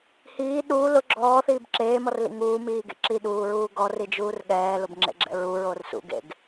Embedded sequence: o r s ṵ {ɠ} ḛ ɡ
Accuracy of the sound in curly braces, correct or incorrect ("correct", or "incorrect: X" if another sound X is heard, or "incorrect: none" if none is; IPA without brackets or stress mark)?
incorrect: ɡ